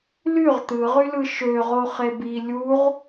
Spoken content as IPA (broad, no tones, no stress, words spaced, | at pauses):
lyʁ t̪ɯʁylɯ ʃøʁoχeb i lʲuʁ